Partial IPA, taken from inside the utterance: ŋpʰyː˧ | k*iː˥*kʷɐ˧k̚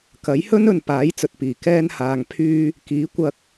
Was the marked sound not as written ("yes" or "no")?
yes